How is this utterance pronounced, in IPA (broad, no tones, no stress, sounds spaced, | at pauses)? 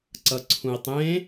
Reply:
ǀ ʌ ǀʰ ũ i̯ tˤ ẽ